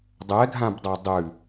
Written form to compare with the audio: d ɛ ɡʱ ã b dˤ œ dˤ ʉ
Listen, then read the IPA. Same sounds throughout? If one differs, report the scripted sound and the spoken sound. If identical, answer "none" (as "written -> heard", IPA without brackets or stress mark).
d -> dˤ